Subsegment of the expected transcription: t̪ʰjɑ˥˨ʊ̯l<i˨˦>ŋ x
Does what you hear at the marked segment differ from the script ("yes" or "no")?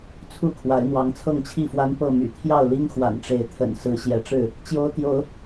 yes